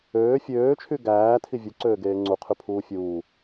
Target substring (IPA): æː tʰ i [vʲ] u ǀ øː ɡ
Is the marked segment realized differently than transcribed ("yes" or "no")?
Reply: no